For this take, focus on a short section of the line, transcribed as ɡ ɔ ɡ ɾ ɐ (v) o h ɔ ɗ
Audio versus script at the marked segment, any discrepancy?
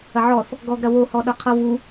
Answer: yes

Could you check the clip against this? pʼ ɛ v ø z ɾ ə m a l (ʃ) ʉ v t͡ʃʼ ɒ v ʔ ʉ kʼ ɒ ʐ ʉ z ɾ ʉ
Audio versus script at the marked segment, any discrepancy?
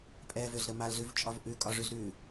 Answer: yes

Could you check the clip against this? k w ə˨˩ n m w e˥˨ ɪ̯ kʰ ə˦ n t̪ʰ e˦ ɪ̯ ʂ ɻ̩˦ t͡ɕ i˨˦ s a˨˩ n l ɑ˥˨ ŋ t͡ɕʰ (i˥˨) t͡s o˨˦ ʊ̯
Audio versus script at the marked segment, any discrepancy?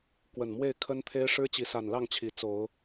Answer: yes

